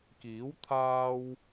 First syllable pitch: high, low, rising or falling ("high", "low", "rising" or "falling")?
rising